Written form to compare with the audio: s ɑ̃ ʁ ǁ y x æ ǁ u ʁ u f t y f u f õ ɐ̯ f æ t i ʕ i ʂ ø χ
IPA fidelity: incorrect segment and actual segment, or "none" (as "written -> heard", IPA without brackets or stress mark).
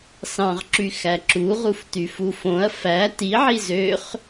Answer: ʂ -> z